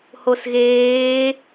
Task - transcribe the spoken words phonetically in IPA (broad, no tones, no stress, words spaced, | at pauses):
hosɣeː